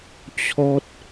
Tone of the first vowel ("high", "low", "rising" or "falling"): high